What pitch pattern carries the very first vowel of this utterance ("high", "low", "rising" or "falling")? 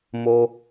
high